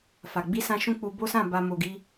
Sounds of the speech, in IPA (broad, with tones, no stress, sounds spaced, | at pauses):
f a˨ ɡ͡b i˧ s ã˧ ʃ ũ˦ k͡p u˧ b o˦ s ã˦˨ b a˨ m o˨ ɡ i˧